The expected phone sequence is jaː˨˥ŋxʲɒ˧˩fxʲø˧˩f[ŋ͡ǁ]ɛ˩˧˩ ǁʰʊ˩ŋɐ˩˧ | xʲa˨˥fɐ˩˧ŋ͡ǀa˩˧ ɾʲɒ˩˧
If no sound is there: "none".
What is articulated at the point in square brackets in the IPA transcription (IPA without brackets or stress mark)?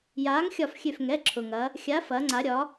ŋ